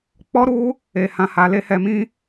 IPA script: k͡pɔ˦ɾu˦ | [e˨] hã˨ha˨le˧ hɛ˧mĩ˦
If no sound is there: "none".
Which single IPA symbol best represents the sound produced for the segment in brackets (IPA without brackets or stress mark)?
e˨